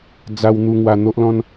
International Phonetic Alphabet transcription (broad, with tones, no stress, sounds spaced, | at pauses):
d͡z a˧ w n̪ u˧ ŋ w a˧ n̪ o˦ ʔ l ɔ̃˦ n